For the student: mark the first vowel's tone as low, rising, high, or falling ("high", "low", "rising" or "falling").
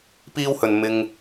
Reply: high